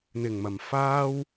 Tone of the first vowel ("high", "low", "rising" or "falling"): low